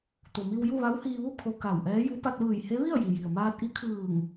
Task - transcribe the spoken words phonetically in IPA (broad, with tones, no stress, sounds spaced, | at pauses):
t̪ o˩ m i˧ w j u˥˨ ʋ a˧˥ w h iː˧ ʋ u˥˨ kʰ o˧ k a˧˩ w ʔ ɛː˧˥ j u˧˥ p a˧ t̚ ʋ ɯː˧˩ j h e˧˥ ʋ i˥˨ ə̯ j i˩ j i˩ ə̯ m aː˧ t̚ ʔ i˧˥ kʰ ɯː˧˩ ŋ